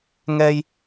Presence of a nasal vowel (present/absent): absent